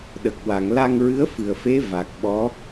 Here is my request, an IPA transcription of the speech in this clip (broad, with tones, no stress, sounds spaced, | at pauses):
ɗ ə˨˩ k̚ w a˨˩˨ ŋ l a˧ ŋ ɹ ɨ˧˥ ə̯ f ɨ˨˩ ə̯ f e˧˥ v a˨˩ k̚ ɓ ɔ˧˥